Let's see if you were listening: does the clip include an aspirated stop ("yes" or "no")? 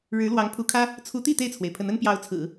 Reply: yes